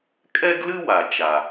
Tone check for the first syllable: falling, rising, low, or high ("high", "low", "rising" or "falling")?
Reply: high